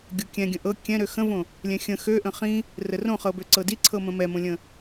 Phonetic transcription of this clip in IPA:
ɡʲ o kʲ ɛ̃ ɡʲ ə̃ ʔ ɤ kʲ ɛ̃ ɾ ø x ə̃ v õ | lʲ ɛ̃ xʲ ə̃ x ø ʔ ə̃ χ ĩ | r ə r õ χ ɤ b ø ǀ ɤ d i ǀʰ ɤ m ə̃ m ɛ m õ lʲ ə̃

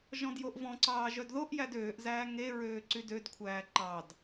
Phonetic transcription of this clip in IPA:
ʒ ɔ̃ d j o ʔ v ɔ̃ ǀ ɑː ʒ œ d ð o ʔ j æ d øː ʔ z æː ŋ e ɹ øː ǀ y d ø d kʷʰ æː ǃ ɑ d

